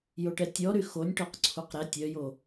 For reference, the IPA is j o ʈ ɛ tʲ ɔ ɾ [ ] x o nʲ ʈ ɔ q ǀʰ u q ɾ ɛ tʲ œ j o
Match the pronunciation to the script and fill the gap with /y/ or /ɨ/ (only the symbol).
y